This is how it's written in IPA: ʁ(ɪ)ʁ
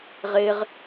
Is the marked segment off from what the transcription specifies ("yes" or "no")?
no